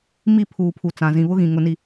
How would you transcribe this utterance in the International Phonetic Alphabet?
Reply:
m i˦˨ pʰ uː˨ pʰ u˨ t͡s ã˨ z ĩ˨ β ʊ˦ ɣ ĩ˨ ŋ ʊ˦ n i˦

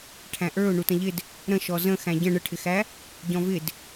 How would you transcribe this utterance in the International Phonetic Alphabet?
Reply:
ʈʰ æ̃ ʔ ə˞ ʊ̯ ɳ u t ə̃ ʎ ɪ d | ɾ ə̃ ʃ ɔ z ə̃ x æ̃ ɟ ə̃ ɳ ə ʈʰ ɪ x æ | ɟ ɔ̃ v ɪ d

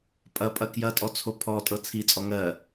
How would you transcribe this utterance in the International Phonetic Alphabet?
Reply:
pʼ ɐ pʼ ɐ k j ɐ tʼ ɔ t͡sʰ o pʰ ɔ tʼ ɤ t͡sʰ i t͡sʼ ɔ ŋ ɜ

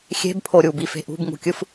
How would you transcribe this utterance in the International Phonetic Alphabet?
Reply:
xʲ e̤ b pʰ o ɾʲ u b i f e̤ ʔ ṳ b ŋ ṳ kʲ ɯ f

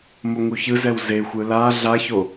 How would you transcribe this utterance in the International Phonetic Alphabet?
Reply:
m o ŋ u ç ɯ z ɛ w z e xʷ ɯ l a ɮ a ç o

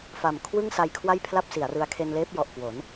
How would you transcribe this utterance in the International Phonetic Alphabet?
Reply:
f a˨˩ m kʰ w ɯ˥˩ ŋ s a˧ j kʰ w a˥˩ j pʰ l a˥˩ p̚ s i˩˦ a̯ r ɯ˧ a̯ kʰ e˧ n l eː˦˥ p̚ j ɔ˨˩ ʔ k w o˩˦ n

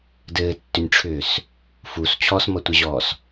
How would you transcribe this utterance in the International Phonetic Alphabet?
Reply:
d ɘː tː ʏ nʲ ʈ͡ʂʰ ʏː s | f u s t͡ɕʰ ɔ s m ʌ tʷ ɘ ʑ ɔː s

